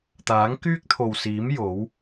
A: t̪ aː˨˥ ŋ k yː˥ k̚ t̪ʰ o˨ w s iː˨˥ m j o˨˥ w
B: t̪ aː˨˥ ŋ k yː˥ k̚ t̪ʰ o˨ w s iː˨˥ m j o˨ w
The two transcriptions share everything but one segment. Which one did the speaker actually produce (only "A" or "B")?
A